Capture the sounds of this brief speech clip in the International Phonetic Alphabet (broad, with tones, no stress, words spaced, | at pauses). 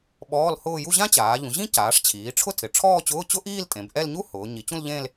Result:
ɓɔː˧˥˧lhʊː˥˧ ju˥˧ʑã˥t͡ɕaː˩˧ ʎũ˩˧ʑĩ˥ caː˩˧ʂt͡ɕʰiː˩˧ʈ͡ʂʰʊ˥˧tʰɪ˩˧ ʈ͡ʂʰɔː˥˧t͡ɕʊː˧˥˧t͡ɕʊ˥ʔiː˥˧l tʼẽ˩˧bʔɛ˥˧lɲu˥ hʊː˩˧ ɲi˩˧t͡ɕũ˥˧lʎẽ˥˧l